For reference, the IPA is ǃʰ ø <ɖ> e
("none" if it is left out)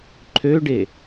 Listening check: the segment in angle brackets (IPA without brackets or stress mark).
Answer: ɖ